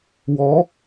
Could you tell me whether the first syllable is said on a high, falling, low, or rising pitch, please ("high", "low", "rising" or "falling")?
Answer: rising